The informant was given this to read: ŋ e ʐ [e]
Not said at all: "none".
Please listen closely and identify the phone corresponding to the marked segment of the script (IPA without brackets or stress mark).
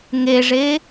e